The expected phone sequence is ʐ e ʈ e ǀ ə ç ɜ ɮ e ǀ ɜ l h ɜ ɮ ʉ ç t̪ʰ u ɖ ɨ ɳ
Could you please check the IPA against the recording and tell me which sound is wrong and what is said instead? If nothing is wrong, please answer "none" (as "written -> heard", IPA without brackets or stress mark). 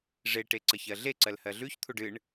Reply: none